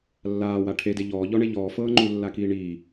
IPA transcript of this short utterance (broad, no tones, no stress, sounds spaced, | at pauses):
lː aː w a ʈʰ e d e ʎ ɔː ʎ ɔ ɳ e ʎ ɔː f ɤː ŋ͡ǃ u lː a k iː ɳ iː